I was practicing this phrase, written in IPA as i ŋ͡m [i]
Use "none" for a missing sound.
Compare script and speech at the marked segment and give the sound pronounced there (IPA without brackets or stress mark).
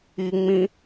ĩ